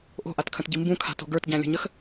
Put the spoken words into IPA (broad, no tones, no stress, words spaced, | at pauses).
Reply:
ʔo̤ʔatkʰə̃tɟi mbũkʰa̤to̤ ɡə˞tɟæ̃lʲə̤ɲəx